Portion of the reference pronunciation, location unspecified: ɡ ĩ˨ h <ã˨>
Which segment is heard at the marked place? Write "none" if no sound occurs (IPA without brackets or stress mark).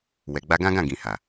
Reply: a˨